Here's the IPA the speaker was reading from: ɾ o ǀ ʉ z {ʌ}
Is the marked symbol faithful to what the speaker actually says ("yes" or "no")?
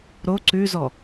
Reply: no